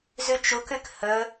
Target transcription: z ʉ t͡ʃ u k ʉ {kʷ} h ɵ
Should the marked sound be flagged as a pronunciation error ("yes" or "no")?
yes